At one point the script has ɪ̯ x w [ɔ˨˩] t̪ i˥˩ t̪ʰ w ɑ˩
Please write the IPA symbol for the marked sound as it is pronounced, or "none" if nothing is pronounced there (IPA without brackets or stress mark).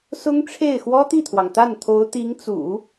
ɔ˥